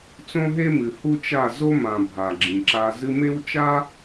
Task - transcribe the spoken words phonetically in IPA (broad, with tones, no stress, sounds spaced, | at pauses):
t͡s õ˦ ɦ e˦ m ɨ˨ h u˦ t͡ʃ a˦˨ z o˦ m ã˨ bʱ a˨ ɡ͡ǁ ĩ˨ ǁ a˧ z ɨ˧ m e˦ w t͡ʃ a˦